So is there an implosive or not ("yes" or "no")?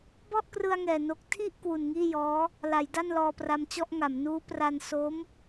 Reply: no